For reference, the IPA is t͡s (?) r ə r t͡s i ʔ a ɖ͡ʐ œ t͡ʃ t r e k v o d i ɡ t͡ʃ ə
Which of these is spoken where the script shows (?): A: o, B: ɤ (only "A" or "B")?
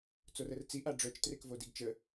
A